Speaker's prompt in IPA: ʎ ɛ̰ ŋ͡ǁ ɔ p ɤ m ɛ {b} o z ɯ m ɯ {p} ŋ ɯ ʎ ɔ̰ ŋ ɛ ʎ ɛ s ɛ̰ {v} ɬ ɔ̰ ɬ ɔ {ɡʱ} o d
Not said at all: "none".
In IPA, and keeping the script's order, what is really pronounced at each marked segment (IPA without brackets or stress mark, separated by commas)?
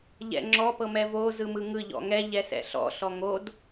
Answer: v, none, none, ŋ